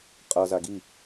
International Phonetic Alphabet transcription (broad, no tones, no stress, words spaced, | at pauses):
qʼʌza ɡi